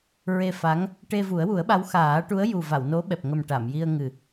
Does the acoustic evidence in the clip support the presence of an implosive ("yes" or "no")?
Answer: yes